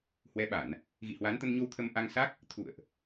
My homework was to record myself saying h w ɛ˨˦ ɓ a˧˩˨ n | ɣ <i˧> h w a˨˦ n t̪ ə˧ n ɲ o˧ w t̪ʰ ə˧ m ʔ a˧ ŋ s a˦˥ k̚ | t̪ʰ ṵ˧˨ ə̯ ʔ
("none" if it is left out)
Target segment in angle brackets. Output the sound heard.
ḭ˧˨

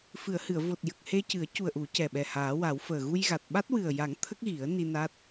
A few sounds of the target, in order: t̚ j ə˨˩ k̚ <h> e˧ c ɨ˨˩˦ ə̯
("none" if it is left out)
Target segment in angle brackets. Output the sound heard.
h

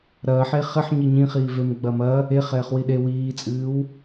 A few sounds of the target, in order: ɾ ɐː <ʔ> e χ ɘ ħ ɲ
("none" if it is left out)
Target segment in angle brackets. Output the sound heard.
ħ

